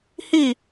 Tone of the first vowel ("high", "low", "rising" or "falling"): falling